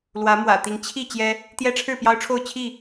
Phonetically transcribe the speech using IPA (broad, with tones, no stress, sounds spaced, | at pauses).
l w ä˨˦ m w ä̰˨˩ t̪ i˨˦ ŋ t͡ɕʰ i˥˨ t͡ɕ j ɛ˦ | t̪ j ɛ˦ ʈ͡ʂʰ ɻ̩˥˨ p j ɑ˦ ʊ̯ ʈ͡ʂʰ o˥˨ ʊ̯ t͡ɕʰ i˥˨